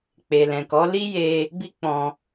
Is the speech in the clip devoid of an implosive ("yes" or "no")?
yes